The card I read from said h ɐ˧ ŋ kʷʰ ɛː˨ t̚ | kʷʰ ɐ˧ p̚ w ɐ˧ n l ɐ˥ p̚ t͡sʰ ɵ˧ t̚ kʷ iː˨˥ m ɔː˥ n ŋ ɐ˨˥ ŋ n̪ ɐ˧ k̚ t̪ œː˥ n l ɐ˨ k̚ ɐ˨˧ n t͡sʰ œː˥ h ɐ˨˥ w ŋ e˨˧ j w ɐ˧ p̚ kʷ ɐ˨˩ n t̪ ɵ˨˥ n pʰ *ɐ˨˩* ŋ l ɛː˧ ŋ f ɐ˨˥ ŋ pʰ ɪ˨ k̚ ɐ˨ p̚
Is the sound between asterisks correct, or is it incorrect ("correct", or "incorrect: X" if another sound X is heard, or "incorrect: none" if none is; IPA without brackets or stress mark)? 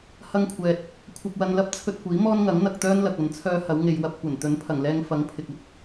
correct